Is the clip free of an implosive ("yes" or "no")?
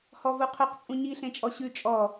yes